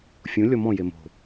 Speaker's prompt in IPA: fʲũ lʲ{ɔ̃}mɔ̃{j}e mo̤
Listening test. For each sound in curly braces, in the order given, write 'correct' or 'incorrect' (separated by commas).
incorrect, correct